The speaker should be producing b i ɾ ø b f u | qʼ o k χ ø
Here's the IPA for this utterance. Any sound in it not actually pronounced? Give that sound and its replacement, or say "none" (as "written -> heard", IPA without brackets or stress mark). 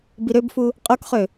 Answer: none